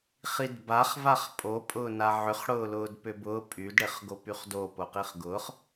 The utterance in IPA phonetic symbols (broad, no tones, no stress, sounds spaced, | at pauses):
χ i d b a χ v a χ pʼ o pʼ ʊː n a ʕ ʏ χ ɽ ʊː l ʊː d p ʏ b ʊː pʼ y d ɽ e χ ɡ o p y χ d o p o q i χ ɡ ʊ χ